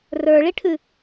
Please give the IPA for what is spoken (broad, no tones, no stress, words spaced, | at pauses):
rə˞ɭiʈʰʉ